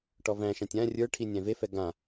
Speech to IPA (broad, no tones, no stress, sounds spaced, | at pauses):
ʈ ɔ v æ̃ ʃ ã tʲ ã rʲ ə˞ ʈʰ i nʲ æ̃ v e f ɛ ɡ ã